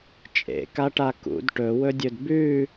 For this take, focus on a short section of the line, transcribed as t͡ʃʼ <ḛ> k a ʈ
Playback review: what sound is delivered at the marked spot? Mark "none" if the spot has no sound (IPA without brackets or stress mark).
ḛ